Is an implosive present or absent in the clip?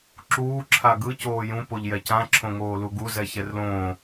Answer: absent